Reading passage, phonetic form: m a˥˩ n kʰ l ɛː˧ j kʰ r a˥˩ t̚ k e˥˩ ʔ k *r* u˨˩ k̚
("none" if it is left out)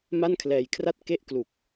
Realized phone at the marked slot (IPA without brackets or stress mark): l